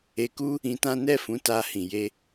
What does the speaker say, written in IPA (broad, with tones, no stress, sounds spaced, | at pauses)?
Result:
e˧ k u˦ | ĩ˧ t ã˦ n ɛ˦˨ f ũ˨˦ t a˧ h ĩ˨ j e˧